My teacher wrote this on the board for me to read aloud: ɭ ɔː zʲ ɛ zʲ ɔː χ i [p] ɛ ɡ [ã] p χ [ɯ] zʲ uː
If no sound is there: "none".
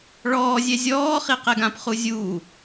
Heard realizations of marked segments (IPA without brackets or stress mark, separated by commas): q, ã, u